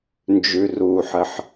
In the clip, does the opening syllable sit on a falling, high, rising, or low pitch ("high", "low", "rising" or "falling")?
low